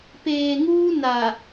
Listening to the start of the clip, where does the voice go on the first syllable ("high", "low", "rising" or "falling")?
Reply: low